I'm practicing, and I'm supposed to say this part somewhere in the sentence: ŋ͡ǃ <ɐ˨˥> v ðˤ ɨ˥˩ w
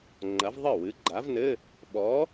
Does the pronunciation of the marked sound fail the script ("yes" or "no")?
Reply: no